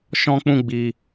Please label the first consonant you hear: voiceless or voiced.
voiceless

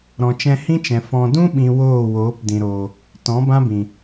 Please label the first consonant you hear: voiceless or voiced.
voiced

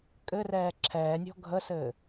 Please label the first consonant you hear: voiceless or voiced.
voiceless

